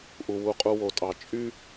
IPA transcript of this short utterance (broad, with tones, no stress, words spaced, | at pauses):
ʔu˨ wu˨qʼu˨ wo˨tʼɑ˨ t͡ʃʼy˦